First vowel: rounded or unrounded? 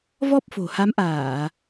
rounded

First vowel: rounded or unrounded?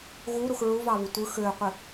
rounded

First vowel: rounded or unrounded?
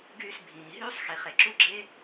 rounded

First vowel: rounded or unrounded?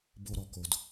rounded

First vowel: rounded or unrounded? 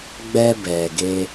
unrounded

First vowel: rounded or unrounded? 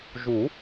rounded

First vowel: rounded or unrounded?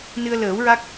unrounded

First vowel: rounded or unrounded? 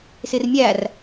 unrounded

